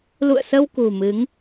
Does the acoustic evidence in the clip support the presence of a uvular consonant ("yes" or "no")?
no